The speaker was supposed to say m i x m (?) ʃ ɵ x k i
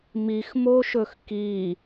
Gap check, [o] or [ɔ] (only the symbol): o